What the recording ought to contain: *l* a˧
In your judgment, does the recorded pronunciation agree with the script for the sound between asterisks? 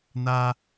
no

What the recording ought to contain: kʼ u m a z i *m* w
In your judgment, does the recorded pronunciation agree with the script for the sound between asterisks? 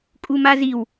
no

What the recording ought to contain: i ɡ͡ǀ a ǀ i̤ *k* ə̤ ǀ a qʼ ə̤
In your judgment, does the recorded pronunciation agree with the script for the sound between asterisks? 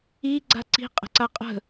no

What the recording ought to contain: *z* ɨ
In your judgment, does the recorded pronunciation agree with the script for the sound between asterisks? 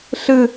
no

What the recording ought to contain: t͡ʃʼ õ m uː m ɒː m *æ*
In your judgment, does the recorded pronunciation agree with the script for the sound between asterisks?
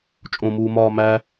yes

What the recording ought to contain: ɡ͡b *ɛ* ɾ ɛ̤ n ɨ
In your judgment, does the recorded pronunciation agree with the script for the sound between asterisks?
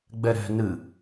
yes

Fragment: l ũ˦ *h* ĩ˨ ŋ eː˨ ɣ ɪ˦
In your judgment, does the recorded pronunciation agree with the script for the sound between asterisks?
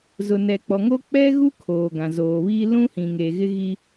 yes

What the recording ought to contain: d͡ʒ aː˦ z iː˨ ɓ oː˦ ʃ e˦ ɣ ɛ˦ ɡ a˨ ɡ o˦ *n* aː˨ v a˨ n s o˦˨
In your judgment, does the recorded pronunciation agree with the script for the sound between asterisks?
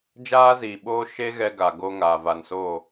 no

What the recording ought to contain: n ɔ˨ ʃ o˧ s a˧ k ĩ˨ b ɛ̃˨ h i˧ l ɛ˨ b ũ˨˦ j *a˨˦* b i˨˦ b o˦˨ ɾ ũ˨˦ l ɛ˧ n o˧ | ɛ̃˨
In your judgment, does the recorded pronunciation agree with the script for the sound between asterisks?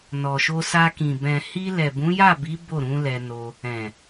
no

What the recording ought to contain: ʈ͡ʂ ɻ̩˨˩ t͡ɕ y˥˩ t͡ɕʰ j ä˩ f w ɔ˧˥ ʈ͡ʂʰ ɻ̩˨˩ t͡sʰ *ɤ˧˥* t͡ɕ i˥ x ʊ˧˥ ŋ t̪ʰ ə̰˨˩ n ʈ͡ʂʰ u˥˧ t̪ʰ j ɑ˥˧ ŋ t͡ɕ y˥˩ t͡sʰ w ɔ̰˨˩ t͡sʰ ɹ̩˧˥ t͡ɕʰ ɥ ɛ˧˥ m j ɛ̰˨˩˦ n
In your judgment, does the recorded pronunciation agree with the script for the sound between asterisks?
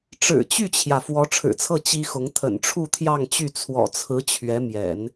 no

